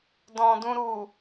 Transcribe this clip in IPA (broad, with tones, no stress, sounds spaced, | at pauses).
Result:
d ɔ̃˨ d ũ˧ ɾ u˨